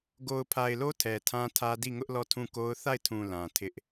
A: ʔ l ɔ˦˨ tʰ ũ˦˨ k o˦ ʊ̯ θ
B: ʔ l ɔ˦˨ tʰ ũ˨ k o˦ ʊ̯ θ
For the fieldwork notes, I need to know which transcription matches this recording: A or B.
A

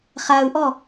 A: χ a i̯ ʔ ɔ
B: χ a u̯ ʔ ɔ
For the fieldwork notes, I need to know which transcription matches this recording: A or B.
B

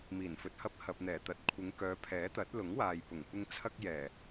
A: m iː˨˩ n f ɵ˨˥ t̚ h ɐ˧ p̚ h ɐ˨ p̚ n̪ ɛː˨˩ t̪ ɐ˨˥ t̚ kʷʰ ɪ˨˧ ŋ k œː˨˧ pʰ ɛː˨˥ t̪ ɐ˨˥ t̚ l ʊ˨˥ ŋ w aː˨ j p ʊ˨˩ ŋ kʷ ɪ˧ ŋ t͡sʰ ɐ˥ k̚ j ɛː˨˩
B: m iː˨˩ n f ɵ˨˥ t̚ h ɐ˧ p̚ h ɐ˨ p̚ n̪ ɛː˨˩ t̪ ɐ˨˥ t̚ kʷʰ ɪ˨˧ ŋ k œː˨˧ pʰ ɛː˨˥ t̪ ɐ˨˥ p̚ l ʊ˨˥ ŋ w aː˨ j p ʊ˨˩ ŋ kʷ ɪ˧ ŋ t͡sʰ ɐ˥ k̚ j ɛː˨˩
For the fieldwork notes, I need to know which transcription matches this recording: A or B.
A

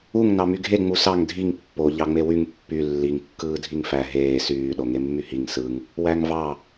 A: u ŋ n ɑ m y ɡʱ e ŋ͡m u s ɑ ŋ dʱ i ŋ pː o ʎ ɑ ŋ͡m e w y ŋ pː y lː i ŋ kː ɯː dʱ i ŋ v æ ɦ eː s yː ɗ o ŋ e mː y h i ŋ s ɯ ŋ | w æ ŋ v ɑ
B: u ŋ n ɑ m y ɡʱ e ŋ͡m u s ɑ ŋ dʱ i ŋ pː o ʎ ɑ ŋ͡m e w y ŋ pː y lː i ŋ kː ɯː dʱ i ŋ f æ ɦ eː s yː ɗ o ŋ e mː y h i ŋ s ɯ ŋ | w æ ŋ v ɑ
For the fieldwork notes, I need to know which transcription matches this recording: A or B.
B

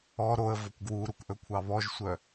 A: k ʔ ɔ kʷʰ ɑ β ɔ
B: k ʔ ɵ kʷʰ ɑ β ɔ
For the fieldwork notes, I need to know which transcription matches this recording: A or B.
B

